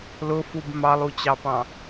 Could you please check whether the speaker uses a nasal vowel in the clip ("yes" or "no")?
yes